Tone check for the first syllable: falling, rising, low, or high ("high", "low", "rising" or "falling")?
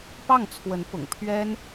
falling